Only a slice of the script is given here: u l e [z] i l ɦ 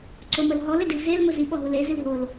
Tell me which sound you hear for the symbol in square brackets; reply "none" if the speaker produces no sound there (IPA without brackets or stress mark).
z